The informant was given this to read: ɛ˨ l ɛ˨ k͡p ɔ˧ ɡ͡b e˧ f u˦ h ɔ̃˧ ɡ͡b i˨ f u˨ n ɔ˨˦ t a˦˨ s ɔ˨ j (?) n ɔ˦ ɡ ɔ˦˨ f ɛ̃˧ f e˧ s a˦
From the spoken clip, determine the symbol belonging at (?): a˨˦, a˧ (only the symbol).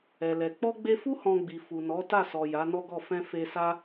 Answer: a˨˦